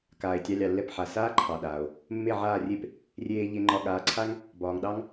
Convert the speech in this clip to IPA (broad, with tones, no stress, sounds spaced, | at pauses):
k aː˩ e̯ tʲ ɑ˧ lʲ ɑ˩ lː ɛ˥˩ p ħ a˩ s aː˥ ǃʰ ɑ˩ ɗ aː˩ o̯ | mː e˥˩ ʕ aː˥˩ rʲ e˥ p | rʲ eː˧ ʎ e˧ ŋ͡ǃ ɒ˧ ɠ aː˩˥ ǀʰ a˥ ŋ | b ɒː˩ ŋ ɗ ɑ˥ ŋ